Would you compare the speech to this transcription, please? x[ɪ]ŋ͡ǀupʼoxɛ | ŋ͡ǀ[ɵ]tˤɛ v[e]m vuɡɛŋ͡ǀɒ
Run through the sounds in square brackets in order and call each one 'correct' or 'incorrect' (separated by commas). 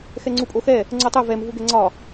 incorrect, incorrect, incorrect